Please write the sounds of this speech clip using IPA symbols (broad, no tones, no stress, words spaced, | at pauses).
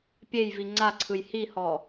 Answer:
pʲejvi ŋ͡ǀaǀʰɯj hihɔ